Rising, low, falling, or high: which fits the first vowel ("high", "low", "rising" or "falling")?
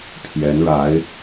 rising